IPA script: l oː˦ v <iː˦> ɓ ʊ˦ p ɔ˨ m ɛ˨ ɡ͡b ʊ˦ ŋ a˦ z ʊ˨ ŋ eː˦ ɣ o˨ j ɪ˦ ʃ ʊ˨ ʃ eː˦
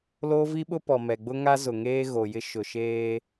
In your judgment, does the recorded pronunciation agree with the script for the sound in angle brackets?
no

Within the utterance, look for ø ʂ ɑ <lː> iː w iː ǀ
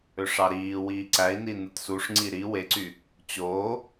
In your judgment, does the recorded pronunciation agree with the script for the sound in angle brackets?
no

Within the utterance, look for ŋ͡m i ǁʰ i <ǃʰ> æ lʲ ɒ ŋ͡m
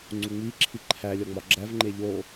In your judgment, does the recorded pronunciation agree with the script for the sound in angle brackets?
yes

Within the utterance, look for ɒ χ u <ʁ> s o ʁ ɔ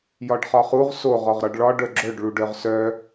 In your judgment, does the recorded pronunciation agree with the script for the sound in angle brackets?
yes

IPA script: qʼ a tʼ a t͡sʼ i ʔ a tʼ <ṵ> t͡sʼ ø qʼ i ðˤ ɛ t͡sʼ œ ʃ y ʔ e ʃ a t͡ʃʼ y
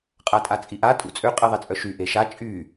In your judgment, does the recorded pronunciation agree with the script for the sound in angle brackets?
yes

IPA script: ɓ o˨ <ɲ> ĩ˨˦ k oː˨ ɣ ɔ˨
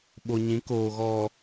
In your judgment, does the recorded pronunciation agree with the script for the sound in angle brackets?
yes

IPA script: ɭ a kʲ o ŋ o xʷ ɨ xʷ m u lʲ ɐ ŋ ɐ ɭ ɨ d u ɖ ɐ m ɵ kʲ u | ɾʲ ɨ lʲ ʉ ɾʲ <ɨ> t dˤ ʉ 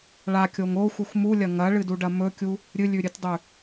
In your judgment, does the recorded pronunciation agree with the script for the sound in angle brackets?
yes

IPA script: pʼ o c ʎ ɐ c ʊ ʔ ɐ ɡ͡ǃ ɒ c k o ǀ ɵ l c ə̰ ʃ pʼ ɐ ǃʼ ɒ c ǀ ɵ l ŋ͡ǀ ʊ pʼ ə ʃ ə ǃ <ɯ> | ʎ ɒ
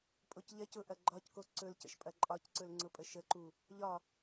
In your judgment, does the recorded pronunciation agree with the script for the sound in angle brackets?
no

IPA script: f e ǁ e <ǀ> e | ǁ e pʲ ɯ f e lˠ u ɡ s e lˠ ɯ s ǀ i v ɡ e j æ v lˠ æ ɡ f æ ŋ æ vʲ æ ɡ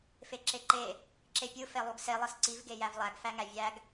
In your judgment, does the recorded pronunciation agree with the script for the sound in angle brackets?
no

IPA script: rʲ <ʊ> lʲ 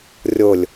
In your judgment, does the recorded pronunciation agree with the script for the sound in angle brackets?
yes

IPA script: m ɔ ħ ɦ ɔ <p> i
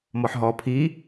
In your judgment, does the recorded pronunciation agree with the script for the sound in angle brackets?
no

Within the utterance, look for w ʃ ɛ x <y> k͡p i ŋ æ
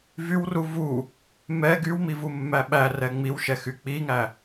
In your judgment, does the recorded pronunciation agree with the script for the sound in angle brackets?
yes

